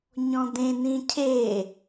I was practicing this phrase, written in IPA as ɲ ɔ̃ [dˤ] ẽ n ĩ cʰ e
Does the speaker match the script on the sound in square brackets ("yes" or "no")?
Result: no